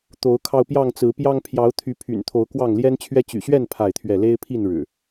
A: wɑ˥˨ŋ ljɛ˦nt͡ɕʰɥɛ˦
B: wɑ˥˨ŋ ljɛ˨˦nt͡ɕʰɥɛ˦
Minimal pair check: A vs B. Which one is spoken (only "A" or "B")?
A